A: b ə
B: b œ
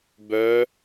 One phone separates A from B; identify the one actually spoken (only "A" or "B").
B